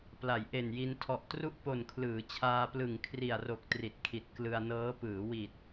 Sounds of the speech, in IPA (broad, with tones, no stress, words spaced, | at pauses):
pla˩˦jʔe˨˩nji˧n tʰɔ˨˩ʔtru˥˩ʔpo˨˩nkʰlɯː˩˦ t͡ɕʰaː˧plɯ˨˩ŋ kʰri˨˩a̯ro˨˩k̚ tri˨˩t̚kʰi˨˩t̚ klɯ˧a̯nɤː˦˥ pɯː˩˦wi˨˩t̚